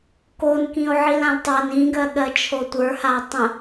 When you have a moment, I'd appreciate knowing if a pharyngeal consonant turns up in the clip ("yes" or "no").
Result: yes